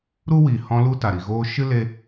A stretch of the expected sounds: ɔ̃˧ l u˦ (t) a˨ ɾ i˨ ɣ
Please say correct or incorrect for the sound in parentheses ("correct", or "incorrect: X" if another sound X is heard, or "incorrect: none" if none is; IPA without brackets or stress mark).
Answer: correct